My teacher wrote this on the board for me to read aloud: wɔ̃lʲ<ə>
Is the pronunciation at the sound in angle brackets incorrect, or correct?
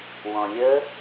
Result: correct